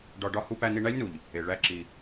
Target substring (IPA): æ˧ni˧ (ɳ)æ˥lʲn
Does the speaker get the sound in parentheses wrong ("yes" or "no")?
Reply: no